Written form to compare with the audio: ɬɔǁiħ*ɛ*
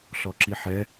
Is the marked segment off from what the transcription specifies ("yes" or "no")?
no